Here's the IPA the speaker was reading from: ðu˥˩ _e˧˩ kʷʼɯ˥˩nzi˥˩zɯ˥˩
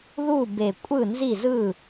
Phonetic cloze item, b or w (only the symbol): b